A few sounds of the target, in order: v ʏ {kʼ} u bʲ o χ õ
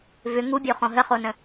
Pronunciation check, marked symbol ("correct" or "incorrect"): incorrect